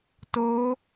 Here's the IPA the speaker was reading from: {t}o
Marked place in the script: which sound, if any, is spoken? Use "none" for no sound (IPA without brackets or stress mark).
t